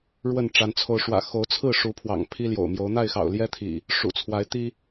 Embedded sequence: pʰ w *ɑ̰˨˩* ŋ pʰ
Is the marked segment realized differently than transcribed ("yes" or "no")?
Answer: no